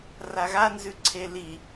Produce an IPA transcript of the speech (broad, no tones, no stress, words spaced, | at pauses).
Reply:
raɣanzʉ ǀʰeli